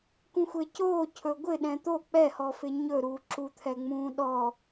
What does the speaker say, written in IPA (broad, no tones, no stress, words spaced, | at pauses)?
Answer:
kũxʷecoː cʰɵɡʷɪ ɗɛ̃t̪o k͡pɛhɔfɪ ɲɵɾuː ǁut̪ʰɛŋ͡mũːɗɔ